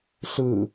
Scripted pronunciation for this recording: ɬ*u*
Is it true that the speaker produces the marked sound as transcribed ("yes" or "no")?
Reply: no